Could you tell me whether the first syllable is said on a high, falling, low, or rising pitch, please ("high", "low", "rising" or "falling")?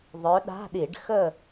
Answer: rising